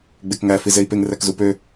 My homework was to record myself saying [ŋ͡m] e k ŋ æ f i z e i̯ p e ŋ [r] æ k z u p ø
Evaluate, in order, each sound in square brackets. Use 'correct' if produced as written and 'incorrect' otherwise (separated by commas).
incorrect, correct